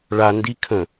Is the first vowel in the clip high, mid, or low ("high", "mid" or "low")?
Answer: low